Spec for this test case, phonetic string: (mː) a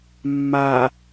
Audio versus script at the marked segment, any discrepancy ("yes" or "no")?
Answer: no